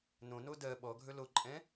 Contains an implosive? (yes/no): yes